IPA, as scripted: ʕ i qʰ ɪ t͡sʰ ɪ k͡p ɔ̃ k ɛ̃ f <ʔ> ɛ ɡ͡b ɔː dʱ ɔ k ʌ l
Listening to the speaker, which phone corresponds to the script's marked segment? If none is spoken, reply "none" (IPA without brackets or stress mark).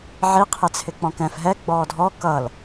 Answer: ɦ